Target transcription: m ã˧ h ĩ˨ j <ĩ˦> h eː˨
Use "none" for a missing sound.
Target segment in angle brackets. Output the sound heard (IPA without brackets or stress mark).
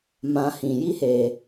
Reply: i˦